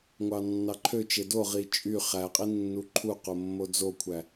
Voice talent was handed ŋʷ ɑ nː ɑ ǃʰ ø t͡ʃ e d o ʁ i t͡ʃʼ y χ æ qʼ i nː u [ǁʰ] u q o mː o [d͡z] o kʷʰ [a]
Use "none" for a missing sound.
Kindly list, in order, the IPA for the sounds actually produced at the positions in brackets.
ǃʰ, d͡z, æ

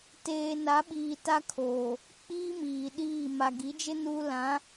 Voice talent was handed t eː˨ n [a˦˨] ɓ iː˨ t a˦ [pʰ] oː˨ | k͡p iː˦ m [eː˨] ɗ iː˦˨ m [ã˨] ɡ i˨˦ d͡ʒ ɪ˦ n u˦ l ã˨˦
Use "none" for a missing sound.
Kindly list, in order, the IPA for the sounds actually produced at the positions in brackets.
a˨˦, kʰ, iː˨, a˨

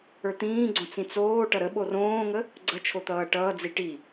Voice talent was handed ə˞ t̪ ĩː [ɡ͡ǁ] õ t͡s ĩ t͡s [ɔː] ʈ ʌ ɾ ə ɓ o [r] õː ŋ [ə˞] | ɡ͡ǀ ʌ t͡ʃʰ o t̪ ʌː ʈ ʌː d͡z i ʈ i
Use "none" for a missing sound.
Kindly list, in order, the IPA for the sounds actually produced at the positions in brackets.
ɡ͡ǀ, oː, r, ə

